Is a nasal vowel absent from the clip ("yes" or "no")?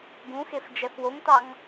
no